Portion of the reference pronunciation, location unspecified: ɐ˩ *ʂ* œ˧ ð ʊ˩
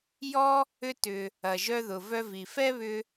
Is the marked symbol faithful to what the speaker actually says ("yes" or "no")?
no